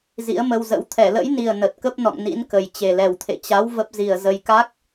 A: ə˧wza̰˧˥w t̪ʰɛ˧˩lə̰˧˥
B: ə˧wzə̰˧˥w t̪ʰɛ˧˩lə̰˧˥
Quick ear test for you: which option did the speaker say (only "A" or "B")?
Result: B